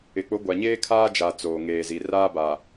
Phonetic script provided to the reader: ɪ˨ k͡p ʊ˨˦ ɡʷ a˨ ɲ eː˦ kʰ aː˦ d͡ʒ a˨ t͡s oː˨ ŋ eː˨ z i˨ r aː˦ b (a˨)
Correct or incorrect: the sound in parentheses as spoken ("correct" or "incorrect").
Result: correct